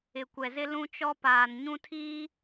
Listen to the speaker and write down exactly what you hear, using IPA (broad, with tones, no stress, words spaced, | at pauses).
ɪ˨kʷɛ˨zɪ˦ lũ˦t͡ʃɔ˦paː˨n ɲũ˦tʰiː˦